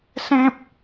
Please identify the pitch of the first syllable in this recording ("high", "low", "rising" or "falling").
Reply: high